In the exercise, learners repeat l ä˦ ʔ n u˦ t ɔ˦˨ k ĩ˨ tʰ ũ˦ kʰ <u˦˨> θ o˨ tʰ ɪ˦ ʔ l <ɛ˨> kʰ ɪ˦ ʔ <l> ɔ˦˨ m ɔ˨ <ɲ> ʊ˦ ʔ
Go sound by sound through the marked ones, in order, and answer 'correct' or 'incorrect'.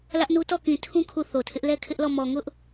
correct, incorrect: ɛ˦, correct, incorrect: ŋ

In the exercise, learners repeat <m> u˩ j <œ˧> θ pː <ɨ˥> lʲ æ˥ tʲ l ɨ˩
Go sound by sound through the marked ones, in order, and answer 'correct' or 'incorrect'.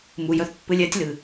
correct, correct, incorrect: ɨ˧

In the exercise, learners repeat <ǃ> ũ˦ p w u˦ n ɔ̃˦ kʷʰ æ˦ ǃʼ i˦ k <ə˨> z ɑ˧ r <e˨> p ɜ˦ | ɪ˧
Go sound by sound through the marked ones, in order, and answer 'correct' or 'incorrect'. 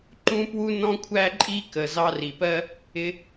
correct, correct, incorrect: i˨

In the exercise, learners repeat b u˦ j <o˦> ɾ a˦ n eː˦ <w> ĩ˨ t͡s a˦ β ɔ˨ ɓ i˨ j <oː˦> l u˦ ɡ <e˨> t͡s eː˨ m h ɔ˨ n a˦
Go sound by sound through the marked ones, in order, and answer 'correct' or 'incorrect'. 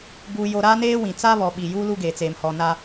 correct, correct, incorrect: uː˦, correct

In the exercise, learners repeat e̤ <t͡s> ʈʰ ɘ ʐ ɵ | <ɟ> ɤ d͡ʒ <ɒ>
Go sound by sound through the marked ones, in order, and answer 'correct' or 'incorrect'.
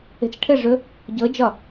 correct, correct, correct

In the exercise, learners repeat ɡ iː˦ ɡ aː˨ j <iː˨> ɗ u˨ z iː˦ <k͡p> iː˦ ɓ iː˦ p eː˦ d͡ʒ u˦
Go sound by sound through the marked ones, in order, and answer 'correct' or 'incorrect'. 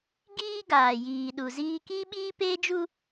correct, incorrect: k

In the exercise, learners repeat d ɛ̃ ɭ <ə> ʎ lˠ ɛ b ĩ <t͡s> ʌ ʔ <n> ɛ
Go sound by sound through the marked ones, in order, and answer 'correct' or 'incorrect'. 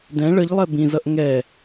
correct, incorrect: z, incorrect: ŋ

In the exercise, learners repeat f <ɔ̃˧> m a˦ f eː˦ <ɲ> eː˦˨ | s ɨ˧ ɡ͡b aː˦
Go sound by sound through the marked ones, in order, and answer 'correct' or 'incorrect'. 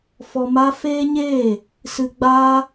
incorrect: ɔ˧, correct

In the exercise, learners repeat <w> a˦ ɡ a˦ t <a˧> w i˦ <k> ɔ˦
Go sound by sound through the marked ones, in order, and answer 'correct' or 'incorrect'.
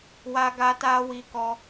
correct, incorrect: a˦, correct

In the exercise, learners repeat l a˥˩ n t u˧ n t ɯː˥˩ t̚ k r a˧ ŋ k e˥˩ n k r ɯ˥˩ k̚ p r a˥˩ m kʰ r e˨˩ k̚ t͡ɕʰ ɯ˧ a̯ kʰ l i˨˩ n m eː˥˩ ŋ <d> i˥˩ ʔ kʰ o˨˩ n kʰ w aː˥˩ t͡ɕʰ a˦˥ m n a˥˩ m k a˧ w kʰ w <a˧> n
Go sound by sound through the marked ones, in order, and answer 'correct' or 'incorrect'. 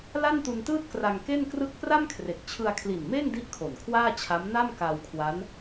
correct, incorrect: a˦˥

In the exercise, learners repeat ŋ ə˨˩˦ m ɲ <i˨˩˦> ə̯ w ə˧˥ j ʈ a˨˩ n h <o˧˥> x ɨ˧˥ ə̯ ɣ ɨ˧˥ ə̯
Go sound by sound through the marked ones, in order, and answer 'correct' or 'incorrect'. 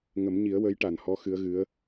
correct, incorrect: ɔ˧˥

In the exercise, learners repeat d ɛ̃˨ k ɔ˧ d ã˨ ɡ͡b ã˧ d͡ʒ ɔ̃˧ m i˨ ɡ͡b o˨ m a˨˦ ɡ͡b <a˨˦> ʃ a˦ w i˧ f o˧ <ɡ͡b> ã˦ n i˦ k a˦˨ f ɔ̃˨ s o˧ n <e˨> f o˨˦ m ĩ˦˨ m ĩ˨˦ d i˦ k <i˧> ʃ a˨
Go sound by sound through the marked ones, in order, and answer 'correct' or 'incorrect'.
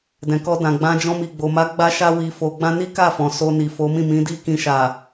incorrect: a˦, correct, incorrect: i˨, incorrect: ĩ˧

